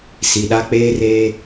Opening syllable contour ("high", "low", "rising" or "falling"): low